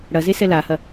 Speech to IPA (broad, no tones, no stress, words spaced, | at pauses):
ɽɐzesɛ lahɐ